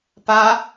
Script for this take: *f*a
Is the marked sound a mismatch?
yes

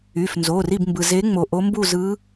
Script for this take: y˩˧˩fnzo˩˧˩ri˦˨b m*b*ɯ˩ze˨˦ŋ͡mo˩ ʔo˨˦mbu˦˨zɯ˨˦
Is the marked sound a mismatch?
no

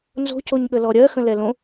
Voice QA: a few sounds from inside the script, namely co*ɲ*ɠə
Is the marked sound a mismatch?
no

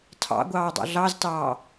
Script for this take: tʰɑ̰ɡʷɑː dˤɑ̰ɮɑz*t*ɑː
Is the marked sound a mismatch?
no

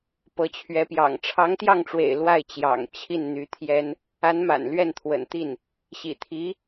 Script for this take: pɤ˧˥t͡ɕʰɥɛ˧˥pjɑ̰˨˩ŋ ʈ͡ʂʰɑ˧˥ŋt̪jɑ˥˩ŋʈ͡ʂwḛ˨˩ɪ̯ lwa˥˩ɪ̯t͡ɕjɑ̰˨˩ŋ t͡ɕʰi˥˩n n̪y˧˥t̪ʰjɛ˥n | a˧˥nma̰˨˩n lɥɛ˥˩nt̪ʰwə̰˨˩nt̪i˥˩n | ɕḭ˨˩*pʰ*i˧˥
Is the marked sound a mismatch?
yes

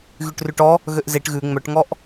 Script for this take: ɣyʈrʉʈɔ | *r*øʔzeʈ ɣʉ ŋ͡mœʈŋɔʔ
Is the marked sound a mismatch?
yes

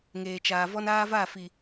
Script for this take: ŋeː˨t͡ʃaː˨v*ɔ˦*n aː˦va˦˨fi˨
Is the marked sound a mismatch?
no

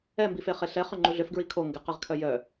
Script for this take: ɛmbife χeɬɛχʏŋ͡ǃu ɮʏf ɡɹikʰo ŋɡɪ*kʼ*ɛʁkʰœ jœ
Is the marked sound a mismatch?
yes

